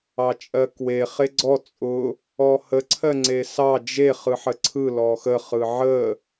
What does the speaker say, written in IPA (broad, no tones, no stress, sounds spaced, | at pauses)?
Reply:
ɑ t͡ʃʼ ɜ k w e χ e ɡ͡ǀ ɔ t͡sʼ ʊ | ɔ h ə ǀʰ ɜ ŋ͡ǀ e s ɑ d͡ʒ e χ ɯ ħ ə ǀʰ ɯ l ɔ x ə χ ɯ ʕ ə